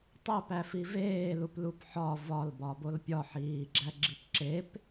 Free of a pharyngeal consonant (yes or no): no